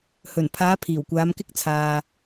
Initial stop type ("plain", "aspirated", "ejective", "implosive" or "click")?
aspirated